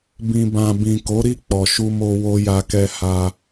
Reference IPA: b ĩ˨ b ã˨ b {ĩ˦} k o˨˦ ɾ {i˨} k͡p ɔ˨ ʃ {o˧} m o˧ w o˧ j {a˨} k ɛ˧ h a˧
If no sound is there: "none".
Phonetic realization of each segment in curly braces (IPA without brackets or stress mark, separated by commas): ĩ˨, i˦˨, u˧, a˧